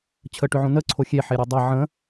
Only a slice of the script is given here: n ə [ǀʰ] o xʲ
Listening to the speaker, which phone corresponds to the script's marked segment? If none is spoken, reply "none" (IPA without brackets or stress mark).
ǀʰ